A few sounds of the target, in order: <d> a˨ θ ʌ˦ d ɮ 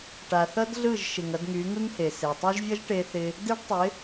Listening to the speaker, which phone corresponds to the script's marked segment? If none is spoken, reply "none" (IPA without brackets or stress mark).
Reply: ʈ